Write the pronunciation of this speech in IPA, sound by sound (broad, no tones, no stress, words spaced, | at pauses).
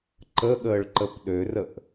ǃəɠəːɭǃəp ɗørəʔ